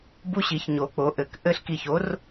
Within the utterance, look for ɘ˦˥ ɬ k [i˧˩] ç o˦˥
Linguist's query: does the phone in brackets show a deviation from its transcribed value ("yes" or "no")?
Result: no